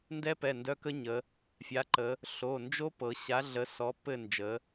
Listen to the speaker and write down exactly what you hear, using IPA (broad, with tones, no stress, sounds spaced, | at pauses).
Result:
n d ɛ˦˥ p ɛ˩˧˩ n d œ˦˥ k ə˦˥ ɲ ə˩˧ | fʲ a˩˥ ǃ ə˩˧ | ɬ o˩˧˩ n d͡ʒ o˦˥ p ɤ˩˧ ɕ a˩˥ ɮ ə˩˥ s ɔ˩˥ pː ɘ˦˨ n d͡ʒ ə˩˧